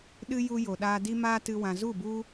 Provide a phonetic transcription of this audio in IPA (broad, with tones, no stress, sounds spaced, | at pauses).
ɗ ɨ˦ j u˧ j o˨ ɗ aː˧ d i˦ m aː˦ t ɨ˧ w ã˨ z u˦˨ b u˦